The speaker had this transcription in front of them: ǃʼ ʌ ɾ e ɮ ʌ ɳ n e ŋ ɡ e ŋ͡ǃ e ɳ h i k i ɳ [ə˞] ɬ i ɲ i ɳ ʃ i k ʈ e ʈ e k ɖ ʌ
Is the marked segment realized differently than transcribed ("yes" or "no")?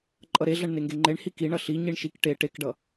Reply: yes